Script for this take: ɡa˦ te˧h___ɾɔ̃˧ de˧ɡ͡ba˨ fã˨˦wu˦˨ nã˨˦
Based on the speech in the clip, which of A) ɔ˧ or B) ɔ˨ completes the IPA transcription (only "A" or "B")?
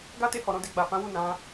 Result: B